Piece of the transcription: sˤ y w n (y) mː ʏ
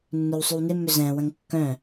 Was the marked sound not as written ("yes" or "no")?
yes